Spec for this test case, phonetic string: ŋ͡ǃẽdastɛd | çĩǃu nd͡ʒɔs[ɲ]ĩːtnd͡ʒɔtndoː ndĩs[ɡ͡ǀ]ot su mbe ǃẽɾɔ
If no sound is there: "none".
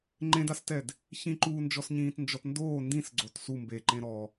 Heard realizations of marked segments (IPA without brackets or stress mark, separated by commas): ɲ, ɡ͡ǀ